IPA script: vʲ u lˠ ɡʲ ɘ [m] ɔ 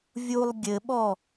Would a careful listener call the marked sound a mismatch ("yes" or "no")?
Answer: yes